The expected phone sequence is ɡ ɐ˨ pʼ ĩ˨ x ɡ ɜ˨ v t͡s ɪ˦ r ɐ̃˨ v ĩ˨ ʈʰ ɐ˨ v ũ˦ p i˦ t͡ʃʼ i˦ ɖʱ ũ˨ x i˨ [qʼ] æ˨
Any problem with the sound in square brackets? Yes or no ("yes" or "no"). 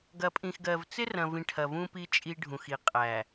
no